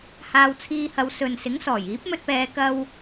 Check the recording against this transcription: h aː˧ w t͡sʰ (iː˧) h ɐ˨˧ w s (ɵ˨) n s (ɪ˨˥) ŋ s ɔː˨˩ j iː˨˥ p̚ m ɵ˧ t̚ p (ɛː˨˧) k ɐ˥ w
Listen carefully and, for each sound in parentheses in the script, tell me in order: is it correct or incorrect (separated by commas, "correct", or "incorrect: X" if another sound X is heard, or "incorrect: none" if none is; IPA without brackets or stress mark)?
correct, correct, correct, correct